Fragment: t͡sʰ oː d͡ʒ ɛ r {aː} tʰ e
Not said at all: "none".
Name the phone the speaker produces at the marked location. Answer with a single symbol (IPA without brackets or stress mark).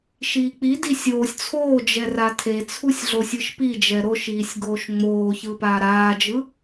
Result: a